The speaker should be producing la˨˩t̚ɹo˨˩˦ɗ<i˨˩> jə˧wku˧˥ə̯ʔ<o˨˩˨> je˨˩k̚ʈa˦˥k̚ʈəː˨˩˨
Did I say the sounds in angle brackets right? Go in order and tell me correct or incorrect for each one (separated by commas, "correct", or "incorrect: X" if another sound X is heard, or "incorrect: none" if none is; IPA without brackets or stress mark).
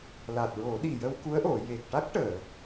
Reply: correct, correct